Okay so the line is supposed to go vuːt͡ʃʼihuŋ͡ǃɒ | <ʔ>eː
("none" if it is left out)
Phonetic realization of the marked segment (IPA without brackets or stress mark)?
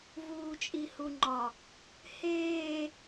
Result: h